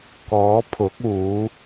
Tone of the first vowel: rising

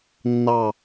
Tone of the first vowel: falling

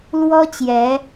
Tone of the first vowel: high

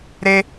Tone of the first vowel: high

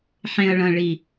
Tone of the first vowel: low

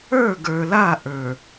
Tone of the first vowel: falling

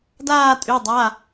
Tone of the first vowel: falling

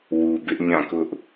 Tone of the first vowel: low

